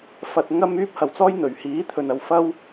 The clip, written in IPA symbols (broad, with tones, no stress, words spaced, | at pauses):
fɐ˧t̚ŋɐ˥m yː˥p̚ hɐ˨wt͡sɔː˥j n̪ɵ˨ɥ hiː˨˥ t̪ʰɵ˨nɐ˨w fɐ˥w